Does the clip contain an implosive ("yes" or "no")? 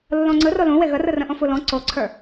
no